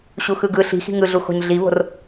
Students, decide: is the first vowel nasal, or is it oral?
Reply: oral